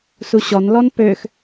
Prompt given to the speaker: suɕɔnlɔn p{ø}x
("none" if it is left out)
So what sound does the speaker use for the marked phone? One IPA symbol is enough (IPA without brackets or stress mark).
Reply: ø